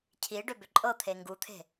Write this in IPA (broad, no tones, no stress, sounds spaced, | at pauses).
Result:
cʰ i ɖ ʏ b ʏ ǃʼ ɤ t̪ʰ e ŋ ɡ u t̪ʰ e̤